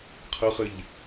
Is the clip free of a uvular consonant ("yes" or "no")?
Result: no